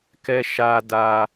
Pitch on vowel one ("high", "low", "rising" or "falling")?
high